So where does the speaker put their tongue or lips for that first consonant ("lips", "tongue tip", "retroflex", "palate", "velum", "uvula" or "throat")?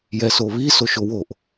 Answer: palate